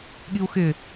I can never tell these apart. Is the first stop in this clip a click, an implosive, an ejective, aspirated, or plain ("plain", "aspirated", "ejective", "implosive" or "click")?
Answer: implosive